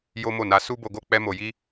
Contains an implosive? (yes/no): no